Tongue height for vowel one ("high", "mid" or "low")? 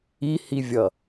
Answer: high